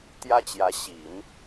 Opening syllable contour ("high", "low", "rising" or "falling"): high